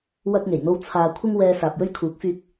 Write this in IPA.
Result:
wɐ˥k̚ŋe˨˩jn̪o˥w t͡sʰaː˨ kʷʰɪ˥ŋwɛː˧ saː˨p̚jɵ˥ɥkʰuː˨˥k̚fyː˧k̚

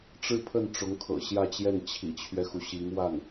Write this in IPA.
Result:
ʈ͡ʂɻ̩˥˧pʰə˥˩n ʈ͡ʂʊ˧˥ŋkʰɤ̰˨˩ɕjä˥˧t͡ɕjɛ˥˩n t͡ɕʰḭ˨˩t͡ɕʰɥɛ˦xu˩ ɕi˧˥ŋ wa˥˩n

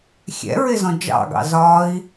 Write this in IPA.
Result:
xʲɛ̰ɹɪzɔ̃ d͡ʒɑ̰ɡɑ̰ zɒi̯

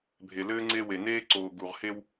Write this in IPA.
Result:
bʱe˨lɘː˦ŋ͡ǀe˦we˨ neː˦ǀoː˨ ɡu˨ʁhe˦w

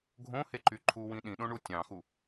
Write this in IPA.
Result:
ɡʱõheǃy ǃʰuwĩ ɗĩɗõɳu tʲɑ̃xu

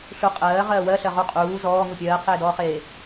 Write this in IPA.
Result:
ɬu qʼɜːʁɜː wɜɬɜʁu qʼuː zɔːŋu pʲɜːqʰeːdɔːχeː

